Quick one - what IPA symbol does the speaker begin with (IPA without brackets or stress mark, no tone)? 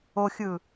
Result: o